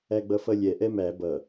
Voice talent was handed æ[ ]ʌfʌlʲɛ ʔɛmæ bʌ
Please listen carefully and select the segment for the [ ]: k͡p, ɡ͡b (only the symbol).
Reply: ɡ͡b